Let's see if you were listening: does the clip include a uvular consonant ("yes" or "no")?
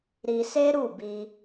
no